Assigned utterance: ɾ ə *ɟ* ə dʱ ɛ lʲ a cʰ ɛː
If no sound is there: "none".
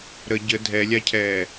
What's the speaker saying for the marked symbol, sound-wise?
ɟ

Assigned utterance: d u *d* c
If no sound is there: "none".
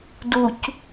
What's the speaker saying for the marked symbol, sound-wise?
none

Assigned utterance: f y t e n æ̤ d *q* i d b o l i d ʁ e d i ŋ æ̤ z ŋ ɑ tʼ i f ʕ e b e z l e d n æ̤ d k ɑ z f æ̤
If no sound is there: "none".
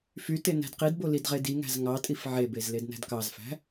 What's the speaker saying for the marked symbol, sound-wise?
q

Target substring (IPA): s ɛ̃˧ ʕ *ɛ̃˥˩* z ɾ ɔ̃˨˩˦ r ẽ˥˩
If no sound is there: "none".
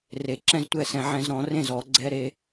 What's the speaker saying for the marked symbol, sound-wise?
ɛ̃˧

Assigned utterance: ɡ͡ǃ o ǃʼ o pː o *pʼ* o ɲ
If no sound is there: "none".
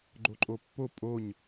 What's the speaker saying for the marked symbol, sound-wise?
pʼ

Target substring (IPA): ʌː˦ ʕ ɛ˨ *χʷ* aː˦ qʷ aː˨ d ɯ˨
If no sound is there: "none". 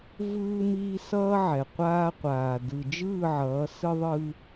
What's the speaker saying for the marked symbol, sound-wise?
qʷ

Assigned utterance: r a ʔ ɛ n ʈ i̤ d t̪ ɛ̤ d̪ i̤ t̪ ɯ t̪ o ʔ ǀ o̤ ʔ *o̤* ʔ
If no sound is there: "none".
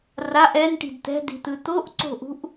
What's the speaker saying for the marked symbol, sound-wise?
ṳ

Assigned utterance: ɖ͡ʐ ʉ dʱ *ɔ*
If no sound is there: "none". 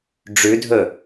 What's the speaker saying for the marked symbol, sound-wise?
ɵ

